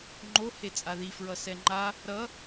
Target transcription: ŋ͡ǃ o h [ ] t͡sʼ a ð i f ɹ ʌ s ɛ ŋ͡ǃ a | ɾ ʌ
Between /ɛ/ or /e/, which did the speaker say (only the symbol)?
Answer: e